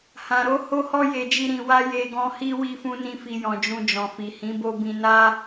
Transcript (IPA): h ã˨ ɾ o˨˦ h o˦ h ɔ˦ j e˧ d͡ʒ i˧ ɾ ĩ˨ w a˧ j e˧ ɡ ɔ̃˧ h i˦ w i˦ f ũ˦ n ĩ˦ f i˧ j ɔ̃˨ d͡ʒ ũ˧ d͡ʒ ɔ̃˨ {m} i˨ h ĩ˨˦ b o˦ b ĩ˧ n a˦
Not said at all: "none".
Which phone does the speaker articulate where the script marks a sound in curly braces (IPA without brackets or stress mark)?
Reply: f